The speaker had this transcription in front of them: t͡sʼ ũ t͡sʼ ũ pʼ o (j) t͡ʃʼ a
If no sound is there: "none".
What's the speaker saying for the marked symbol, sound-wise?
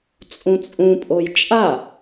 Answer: j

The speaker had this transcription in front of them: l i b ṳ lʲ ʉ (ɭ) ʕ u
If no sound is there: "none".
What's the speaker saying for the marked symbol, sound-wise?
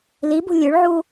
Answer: ɭ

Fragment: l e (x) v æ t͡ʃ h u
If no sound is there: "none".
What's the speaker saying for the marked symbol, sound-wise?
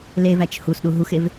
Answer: none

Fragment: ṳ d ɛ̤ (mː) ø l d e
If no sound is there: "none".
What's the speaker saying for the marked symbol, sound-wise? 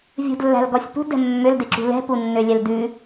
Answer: mː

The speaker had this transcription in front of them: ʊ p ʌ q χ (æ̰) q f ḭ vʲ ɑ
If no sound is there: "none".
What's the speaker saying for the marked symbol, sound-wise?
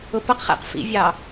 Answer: æ̰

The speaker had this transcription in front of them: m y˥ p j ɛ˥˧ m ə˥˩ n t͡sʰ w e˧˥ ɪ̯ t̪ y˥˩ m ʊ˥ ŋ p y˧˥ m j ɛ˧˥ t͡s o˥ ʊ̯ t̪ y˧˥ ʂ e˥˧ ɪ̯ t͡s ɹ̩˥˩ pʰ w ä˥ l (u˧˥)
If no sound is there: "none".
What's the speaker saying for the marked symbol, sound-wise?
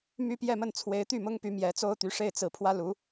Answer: u˧˥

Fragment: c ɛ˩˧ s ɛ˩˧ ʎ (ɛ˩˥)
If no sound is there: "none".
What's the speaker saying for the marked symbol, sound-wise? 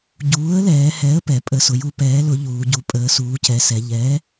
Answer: ɛ˩˥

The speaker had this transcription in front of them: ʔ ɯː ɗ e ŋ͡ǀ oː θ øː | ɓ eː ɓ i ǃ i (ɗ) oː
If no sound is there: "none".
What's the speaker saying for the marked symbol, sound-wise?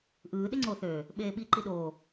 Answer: ɗ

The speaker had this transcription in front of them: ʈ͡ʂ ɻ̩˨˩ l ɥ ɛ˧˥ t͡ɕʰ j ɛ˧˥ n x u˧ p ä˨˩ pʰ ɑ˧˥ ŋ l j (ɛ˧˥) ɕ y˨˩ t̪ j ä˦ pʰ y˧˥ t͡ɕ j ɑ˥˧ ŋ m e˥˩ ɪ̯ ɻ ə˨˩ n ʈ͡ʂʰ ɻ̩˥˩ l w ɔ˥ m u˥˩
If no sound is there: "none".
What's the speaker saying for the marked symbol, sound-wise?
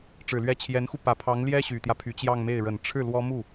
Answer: ɛ˥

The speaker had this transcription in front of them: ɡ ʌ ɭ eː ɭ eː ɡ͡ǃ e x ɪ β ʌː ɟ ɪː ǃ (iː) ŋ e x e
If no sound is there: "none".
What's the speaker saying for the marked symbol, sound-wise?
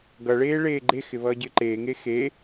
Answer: eː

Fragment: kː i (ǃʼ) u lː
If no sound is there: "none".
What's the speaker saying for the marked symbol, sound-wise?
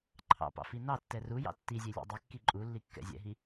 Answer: ǃʼ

